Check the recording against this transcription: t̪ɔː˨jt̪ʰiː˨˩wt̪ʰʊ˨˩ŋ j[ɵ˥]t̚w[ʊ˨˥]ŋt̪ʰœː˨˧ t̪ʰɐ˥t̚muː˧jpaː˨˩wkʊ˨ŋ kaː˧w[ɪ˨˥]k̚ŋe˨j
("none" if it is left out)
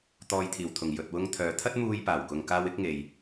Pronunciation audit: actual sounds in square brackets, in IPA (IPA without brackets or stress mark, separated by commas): ɵ˨, ʊ˧, ɪ˨˥